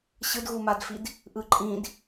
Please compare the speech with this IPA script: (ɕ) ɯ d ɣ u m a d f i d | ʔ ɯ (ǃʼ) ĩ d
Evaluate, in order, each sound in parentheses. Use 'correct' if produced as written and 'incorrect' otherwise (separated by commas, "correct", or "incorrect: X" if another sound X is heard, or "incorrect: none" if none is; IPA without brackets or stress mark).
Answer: correct, correct